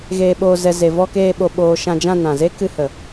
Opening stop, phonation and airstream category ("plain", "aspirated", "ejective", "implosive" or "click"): implosive